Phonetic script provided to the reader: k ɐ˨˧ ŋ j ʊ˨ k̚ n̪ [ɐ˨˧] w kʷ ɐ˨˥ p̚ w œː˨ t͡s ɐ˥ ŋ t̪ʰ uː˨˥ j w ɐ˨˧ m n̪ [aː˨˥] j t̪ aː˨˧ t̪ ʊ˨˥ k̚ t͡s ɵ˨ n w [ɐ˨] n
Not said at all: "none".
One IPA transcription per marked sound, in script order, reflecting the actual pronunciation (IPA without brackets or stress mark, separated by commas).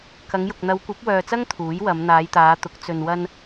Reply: ɐ˨˧, aː˨˧, ɐ˧